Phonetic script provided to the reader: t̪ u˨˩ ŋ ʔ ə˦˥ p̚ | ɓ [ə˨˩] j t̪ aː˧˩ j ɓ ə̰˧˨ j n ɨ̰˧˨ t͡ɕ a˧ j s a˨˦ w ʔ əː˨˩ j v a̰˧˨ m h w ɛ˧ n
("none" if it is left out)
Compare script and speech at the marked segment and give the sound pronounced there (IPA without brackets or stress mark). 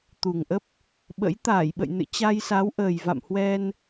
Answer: ə̰˧˥